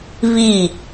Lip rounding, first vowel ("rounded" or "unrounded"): unrounded